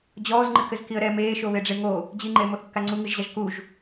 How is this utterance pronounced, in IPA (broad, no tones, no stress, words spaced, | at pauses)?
d͡ʑɔːzŋ͡ǃɨkɘzkiə̯ ɾɛ meːʃoβeɖ͡ʐe ŋo | d͡ʑiŋ͡ǃeːmoθkːa ŋ͡ǀuŋɨʒʑaʒ kuʒ